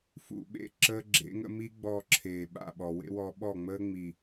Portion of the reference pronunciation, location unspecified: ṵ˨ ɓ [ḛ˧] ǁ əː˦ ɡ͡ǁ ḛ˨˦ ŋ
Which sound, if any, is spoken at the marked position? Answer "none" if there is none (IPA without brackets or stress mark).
ḛ˧